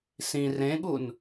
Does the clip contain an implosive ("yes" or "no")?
yes